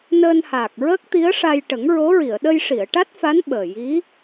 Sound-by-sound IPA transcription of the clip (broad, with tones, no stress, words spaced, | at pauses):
nəː˧nhaː˨˩k̚ ɹəː˦˥k̚t̪i˧˥ə̯ʂa˧j ʈə˨˩˦ŋɹo˧˥ɹi˨˩˨ə̯ ɗə˧jʂi˨˩˨ə̯ʈa˦˥t̚fa˧˥n ɓəː˨˩ji˧˥